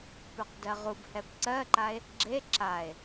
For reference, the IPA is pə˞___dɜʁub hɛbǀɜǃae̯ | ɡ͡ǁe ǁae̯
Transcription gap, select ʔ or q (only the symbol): q